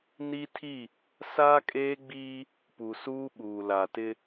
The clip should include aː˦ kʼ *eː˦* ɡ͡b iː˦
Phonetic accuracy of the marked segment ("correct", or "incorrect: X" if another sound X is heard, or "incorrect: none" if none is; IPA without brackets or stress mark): correct